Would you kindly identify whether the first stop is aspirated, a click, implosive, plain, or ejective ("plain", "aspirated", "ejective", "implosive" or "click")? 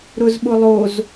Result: implosive